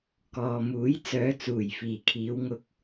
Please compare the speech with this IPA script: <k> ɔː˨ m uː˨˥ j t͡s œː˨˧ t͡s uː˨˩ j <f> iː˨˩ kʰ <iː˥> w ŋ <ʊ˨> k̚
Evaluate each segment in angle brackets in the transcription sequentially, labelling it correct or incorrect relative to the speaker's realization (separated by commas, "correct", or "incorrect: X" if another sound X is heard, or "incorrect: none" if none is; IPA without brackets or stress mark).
correct, correct, incorrect: iː˨˧, correct